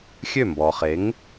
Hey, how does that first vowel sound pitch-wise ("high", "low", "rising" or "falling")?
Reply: falling